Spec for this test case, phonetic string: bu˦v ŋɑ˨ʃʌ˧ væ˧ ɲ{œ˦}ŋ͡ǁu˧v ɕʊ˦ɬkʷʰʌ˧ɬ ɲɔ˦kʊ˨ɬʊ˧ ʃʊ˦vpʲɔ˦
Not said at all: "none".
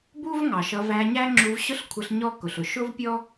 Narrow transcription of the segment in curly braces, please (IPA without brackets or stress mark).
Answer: æ˦